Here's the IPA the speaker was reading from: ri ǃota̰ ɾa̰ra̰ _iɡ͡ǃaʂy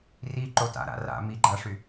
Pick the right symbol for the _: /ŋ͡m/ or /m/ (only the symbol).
m